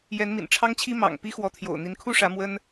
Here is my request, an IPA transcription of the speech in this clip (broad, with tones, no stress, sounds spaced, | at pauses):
j ɛ˨˦ n m ḭ˨˩ n ʈ͡ʂʰ ɑ˦ ŋ t͡ɕʰ i˦ m ɑ̰˨˩ ŋ p i˦ x w ɔ˨˦ t̪ʰ j o̰˨˩ ʊ̯ n̪ i˨˦ n kʰ u˥˨ ʂ ä˨˦ m w ə˦ n